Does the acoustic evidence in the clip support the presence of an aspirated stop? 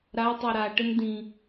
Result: no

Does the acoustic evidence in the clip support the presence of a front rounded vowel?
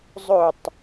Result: no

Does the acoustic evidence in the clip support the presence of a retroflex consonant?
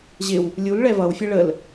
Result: yes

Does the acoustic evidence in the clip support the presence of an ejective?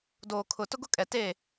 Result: yes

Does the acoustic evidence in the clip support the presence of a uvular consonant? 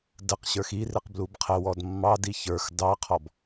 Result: yes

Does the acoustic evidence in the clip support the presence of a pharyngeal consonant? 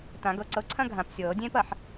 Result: yes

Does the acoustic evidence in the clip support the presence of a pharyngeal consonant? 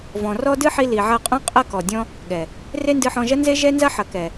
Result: yes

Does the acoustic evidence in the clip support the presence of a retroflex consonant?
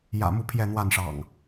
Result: yes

